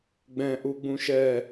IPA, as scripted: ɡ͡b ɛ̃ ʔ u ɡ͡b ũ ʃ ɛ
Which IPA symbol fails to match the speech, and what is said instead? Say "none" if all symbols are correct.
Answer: none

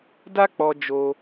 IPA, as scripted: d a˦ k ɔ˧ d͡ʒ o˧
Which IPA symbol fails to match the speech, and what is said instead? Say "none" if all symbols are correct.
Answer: k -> k͡p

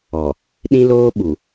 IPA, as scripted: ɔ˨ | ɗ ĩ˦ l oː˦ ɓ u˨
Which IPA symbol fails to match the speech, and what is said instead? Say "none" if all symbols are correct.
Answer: none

